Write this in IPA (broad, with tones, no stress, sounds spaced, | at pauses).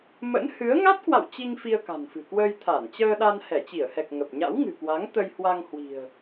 m ə̰˧˥ n h ɨ˨˦ ə̯ ŋ a˦˥ t̚ k w a̰˧˨ w t͡ɕ i˧ ŋ f i˧ ə̯ k a̤˨˩ n f ɨ̤˨˩ k w əː˧ j t̪ʰ a˧˩ n t͡ɕ əː˧ ɗ a˧ n h ɛ˧˩ t͡ɕ i˧˩ ə̯ h ɛ˨˩ k̚ ŋ ə˨˩ p̚ ɲ a̰˧˥ w ŋ ɨ̤˨˩ k w a˨˦ ŋ t̪ ə˧ j h w a˧ ŋ h w i̤˨˩ ə̯